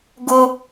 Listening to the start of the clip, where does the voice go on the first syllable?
high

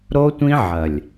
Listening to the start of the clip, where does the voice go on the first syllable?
high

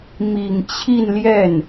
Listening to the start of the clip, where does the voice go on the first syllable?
low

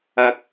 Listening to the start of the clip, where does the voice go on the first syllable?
high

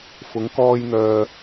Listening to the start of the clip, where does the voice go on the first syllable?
rising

